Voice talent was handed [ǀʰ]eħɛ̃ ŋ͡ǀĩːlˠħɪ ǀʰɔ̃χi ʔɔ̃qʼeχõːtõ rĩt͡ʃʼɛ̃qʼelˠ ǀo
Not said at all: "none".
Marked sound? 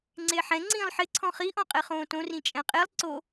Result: ŋ͡ǀ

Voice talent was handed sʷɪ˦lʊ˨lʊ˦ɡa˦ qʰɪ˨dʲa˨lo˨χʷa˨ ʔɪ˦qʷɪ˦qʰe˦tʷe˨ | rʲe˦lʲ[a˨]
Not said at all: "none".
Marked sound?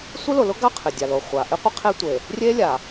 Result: a˨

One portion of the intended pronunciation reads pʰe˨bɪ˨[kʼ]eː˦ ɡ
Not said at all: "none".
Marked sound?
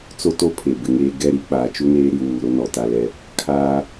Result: ŋ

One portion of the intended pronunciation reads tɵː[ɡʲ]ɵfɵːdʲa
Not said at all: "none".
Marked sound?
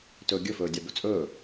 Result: ɡʲ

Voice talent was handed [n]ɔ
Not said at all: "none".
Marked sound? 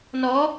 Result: n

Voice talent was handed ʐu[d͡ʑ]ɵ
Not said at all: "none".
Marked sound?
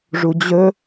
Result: d͡ʑ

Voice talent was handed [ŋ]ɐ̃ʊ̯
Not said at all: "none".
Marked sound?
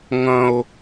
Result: ŋ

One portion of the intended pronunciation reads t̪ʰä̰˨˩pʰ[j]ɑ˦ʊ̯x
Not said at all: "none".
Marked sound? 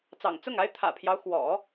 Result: j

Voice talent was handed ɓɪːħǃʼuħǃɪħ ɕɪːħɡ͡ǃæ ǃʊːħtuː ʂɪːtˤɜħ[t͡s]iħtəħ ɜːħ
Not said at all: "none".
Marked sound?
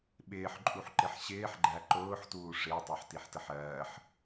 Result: t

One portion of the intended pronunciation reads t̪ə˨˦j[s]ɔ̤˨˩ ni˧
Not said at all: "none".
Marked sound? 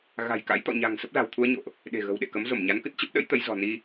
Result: z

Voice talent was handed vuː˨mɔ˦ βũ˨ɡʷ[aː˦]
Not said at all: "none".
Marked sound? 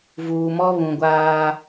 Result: aː˦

